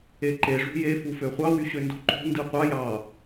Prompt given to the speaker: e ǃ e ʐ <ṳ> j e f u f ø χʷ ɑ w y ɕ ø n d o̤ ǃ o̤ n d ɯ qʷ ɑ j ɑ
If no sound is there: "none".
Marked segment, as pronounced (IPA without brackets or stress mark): ṳ